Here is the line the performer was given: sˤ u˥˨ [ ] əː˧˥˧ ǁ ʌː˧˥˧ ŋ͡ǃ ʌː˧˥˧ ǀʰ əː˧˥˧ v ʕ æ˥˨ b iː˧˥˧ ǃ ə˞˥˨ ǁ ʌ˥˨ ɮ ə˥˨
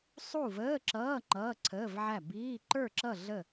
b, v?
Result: v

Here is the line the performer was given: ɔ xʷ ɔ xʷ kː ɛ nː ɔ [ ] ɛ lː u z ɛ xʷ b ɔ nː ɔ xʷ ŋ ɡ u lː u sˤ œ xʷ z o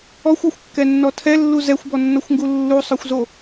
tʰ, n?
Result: tʰ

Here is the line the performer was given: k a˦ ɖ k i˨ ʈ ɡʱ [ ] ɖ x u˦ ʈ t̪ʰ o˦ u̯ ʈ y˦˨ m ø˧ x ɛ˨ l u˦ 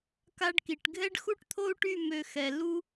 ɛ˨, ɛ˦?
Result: ɛ˦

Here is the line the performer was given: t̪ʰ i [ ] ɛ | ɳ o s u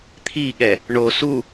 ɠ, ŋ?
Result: ɠ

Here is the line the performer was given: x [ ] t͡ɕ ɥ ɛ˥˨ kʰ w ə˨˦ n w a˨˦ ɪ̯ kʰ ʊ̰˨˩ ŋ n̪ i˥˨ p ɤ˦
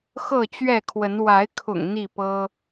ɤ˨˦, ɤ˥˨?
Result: ɤ˥˨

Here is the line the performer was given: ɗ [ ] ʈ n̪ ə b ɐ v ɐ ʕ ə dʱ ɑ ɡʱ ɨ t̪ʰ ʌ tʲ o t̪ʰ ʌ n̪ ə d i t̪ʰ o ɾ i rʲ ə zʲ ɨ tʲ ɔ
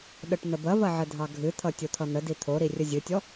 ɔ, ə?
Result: ə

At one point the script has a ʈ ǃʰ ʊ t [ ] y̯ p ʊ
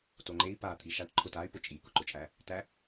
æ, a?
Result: a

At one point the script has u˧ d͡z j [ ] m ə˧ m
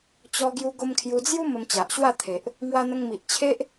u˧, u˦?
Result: u˦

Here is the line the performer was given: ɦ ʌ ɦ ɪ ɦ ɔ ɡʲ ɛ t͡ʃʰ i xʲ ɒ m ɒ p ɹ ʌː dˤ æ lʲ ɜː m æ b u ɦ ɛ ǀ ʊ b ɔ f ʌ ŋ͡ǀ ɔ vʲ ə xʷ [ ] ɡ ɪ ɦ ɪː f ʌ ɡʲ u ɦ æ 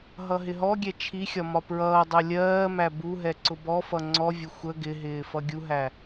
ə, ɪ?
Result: ə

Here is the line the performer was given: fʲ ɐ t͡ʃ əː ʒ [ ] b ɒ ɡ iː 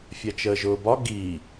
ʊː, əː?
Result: ʊː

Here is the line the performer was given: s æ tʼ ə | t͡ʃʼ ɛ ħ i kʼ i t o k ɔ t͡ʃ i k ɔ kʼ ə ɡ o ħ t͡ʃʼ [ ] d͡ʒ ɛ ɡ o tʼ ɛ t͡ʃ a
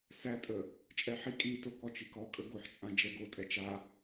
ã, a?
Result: ã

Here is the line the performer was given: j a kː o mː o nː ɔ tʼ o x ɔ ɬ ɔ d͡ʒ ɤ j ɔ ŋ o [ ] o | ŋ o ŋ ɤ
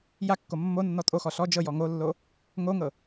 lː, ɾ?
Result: lː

